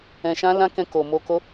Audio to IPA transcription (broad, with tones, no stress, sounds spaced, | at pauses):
ɛ̃˧ ʃ ã˦ l ã˦ k ɛ̃˧ k o˨ m o˧ k o˦